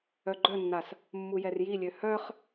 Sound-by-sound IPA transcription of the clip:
œ ɡ͡ǃ œ nː a s | mː u j ɛ r j i lʲ ø h œ χ

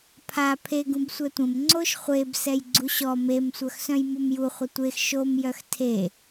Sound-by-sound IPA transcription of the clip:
pʰ a pʰ e ɡ ũ b sʷ ɛ tʷ ə̃ m ŋ͡ǀ o ʃ χʷ e b s ɛ j ɡ͡ǀ u ɕ ɔ m e m sʷ œ x s œ̃ j m u m j u χʷ ə tʷ e x ʃ o m j œ x tʰ e

